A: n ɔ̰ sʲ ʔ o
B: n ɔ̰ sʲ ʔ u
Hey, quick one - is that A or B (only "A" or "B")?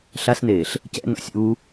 B